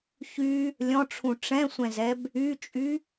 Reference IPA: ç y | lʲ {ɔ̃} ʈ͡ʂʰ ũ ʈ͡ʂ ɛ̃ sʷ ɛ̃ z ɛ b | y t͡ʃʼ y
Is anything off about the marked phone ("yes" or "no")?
no